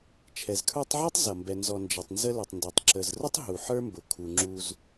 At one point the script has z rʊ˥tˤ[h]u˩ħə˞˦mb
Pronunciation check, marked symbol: incorrect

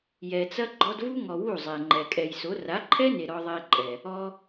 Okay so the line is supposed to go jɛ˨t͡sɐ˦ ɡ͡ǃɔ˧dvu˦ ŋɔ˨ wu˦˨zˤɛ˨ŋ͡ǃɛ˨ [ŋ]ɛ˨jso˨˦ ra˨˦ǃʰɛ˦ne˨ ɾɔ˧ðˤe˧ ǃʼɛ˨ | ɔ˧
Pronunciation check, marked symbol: incorrect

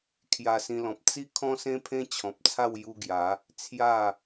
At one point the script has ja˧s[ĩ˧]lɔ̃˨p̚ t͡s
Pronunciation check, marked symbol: correct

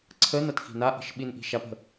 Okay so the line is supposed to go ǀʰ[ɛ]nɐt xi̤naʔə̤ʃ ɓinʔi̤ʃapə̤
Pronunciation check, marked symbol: incorrect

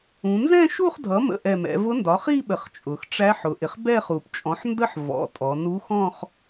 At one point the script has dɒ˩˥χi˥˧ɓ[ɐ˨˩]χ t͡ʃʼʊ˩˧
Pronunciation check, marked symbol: incorrect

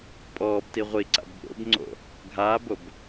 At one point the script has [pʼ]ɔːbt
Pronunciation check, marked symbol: correct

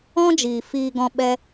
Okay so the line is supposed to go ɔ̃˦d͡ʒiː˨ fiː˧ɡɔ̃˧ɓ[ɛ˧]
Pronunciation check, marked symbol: correct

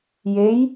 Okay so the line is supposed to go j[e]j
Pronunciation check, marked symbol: correct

